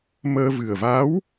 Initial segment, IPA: m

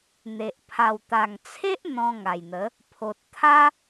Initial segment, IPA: n̪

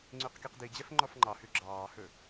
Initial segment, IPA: ŋ͡ǀ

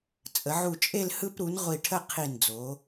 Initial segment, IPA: t͡sʼ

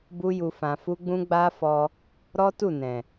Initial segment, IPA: b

